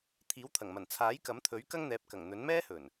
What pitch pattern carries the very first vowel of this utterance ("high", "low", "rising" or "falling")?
rising